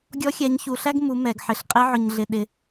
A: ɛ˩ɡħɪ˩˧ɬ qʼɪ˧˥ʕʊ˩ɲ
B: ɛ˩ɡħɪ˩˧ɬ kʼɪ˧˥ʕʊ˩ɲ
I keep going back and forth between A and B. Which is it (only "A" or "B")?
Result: A